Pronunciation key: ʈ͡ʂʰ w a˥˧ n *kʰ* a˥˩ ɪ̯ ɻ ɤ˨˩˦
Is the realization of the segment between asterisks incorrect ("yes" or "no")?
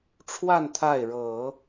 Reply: yes